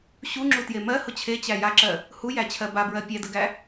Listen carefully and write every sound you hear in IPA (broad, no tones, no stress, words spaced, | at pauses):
ɕuŋ͡ǁutje mɜ hʊt͡ɕʰe t͡ɕæjaǁɜ | hujæt͡ɕʰɜ babɹɜ pʲædəɡæ